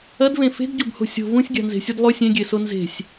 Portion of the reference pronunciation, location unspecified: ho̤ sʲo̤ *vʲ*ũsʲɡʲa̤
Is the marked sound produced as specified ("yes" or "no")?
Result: no